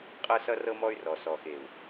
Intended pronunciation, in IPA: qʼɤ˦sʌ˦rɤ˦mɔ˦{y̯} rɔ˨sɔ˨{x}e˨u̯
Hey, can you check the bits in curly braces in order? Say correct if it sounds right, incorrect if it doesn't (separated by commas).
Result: correct, correct